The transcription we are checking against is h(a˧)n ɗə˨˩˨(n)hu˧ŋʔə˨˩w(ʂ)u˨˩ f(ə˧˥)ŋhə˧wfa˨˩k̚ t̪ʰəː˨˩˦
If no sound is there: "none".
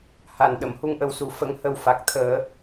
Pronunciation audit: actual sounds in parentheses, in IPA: a˨˩, m, s, ə˧˥

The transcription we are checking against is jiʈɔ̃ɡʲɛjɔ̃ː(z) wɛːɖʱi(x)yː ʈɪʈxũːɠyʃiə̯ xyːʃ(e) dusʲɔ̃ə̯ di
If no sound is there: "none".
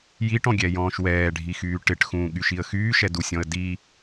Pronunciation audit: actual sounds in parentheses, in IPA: ʃ, x, ɛ

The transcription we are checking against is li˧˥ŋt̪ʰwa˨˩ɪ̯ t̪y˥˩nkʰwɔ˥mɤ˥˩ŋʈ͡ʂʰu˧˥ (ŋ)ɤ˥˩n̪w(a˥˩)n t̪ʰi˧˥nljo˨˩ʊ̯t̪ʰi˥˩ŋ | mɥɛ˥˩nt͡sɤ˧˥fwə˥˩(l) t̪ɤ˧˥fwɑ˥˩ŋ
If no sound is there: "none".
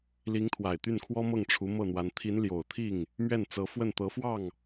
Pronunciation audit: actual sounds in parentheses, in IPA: m, a˧˥, n

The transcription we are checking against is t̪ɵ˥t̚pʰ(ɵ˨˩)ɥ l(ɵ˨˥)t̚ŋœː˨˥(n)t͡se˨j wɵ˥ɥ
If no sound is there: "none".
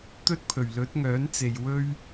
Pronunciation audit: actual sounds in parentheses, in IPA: ɵ˨˩, ɵ˨˥, n

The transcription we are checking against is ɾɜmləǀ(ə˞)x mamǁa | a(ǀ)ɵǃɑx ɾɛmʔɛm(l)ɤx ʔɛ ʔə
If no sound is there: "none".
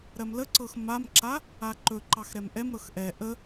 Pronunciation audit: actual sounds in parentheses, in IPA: ɤ, ǃ, ɾ

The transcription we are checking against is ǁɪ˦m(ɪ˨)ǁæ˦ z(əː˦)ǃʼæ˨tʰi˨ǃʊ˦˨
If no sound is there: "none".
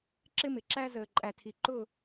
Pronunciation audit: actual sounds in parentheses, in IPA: ɪ˨, əː˨

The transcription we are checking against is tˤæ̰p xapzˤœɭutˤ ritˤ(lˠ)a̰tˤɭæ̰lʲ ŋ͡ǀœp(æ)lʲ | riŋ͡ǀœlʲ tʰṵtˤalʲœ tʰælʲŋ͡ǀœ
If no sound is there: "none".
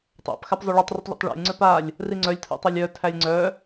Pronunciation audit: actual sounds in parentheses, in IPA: ʎ, a

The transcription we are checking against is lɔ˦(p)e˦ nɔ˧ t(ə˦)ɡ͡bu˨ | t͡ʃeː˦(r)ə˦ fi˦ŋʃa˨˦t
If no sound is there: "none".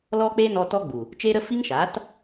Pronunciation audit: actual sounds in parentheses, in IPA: k͡p, ɔ˦, ɾ

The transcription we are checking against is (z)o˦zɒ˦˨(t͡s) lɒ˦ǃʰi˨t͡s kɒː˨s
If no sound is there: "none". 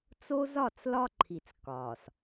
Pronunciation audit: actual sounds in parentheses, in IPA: t͡s, t͡s

